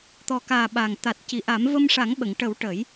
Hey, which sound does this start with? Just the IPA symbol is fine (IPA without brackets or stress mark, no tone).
t̪